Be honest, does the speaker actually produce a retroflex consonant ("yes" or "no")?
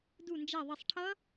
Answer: yes